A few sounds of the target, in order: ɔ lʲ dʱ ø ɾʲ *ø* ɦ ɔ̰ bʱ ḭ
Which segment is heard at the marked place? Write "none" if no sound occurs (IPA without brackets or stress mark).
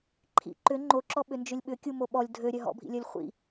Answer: œ